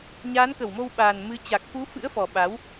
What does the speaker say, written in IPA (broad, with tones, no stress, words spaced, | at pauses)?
ɲaː˨˦nkə˧˩wmo˧wɓaː˨˩n mɨ˨˦ t͡ɕa˨˩k̚fu˨˦fɨ̰˧˥ə̯fɔ˨˩ ɓa˨˦w